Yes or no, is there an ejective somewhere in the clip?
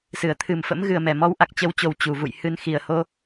no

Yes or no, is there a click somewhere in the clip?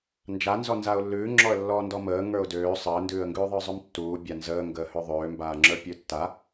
yes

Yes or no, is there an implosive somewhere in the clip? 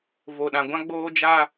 yes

